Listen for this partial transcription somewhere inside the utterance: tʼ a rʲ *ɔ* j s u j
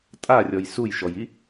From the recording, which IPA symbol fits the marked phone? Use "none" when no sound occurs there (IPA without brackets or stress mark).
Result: ɔ